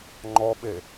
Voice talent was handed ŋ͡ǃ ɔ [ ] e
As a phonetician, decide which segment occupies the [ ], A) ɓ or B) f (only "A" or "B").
A